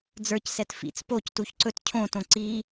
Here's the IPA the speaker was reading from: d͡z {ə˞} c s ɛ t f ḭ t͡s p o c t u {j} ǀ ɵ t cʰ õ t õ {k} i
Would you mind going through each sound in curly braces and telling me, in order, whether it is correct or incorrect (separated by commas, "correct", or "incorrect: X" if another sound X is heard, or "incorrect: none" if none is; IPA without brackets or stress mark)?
correct, incorrect: ç, incorrect: ǀ